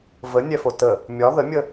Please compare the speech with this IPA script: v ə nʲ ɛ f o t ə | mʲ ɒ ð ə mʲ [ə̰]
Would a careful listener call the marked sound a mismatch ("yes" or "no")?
yes